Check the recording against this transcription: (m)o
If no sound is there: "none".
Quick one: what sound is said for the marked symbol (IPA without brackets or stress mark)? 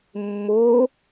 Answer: mː